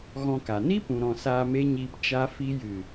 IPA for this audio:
ɣ ɔ̃˧ k a˨ n i˦ p ũ˨ ɾ ɔ̃˨ s aː˧ m e˦ ɲ iː˧ p t͡ʃ a˦ f i˦ j ɨ˦˨

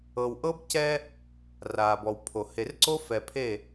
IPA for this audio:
ɤ˨ w ʔ ɤ˦ b c ɛ˦ | r aː˨ b ɔ˨ w pʰ o˨ h e˨ r ǀ o˦ f ɛ˨ pʰ e˦˨

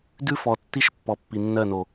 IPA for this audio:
d ʉ˦ f ɔ˨ tː i˦ ʃ pː ɔ˨ pː i˨ nː ɜ˦˨ n o˨

